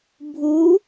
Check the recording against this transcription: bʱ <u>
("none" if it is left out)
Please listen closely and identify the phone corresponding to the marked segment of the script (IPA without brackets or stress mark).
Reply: u